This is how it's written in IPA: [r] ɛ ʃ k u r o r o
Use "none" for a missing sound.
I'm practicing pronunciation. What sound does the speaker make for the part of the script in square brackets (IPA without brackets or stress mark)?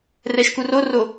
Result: r